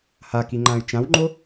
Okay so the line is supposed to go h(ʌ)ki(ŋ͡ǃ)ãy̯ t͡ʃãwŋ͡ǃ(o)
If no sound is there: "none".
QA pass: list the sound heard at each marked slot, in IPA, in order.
a, ŋ͡ǃ, o

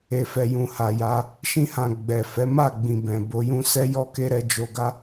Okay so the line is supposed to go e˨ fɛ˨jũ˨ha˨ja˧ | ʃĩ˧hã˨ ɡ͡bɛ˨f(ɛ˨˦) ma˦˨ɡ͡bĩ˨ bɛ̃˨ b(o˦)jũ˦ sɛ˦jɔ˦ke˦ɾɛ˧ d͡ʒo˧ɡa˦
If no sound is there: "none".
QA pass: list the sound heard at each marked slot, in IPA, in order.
ɛ˨˦, o˧

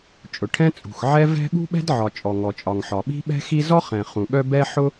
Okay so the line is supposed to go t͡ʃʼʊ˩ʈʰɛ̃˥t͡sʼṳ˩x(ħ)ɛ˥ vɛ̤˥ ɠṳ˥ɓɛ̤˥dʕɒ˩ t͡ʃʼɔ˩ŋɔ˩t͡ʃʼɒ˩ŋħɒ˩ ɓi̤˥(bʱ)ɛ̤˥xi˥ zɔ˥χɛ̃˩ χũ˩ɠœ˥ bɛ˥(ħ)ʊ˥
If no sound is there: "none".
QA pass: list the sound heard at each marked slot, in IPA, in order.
ʕ, ɓ, ħ

